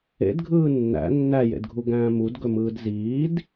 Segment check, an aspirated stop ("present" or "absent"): absent